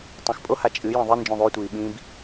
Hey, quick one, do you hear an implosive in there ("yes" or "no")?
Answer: yes